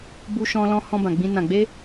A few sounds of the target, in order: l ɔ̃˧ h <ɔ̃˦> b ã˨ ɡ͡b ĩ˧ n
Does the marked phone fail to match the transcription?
yes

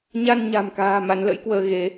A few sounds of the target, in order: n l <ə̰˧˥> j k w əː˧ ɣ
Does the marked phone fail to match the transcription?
no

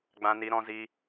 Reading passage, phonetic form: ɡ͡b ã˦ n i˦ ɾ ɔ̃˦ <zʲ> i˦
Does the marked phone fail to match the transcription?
yes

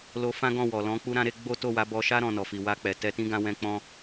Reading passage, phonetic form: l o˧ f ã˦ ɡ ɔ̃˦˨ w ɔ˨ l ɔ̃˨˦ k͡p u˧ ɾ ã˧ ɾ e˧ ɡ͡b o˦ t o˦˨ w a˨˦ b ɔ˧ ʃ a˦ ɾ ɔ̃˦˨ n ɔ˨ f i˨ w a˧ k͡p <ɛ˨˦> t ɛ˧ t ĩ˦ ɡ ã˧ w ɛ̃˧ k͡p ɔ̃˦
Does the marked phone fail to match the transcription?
yes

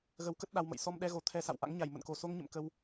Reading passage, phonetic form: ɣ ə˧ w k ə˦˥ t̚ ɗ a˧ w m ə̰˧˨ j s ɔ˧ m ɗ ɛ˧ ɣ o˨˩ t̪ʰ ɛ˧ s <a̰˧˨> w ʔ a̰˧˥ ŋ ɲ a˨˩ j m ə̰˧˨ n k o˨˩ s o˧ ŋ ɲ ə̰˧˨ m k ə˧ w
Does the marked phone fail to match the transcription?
no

